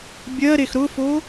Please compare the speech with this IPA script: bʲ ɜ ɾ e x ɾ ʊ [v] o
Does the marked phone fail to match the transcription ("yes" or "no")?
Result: yes